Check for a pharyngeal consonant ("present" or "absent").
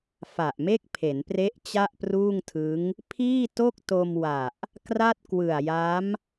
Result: absent